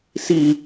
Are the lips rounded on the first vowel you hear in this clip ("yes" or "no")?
no